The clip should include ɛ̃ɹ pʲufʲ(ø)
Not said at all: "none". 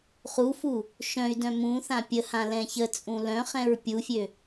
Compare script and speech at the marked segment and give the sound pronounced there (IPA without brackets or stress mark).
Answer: ø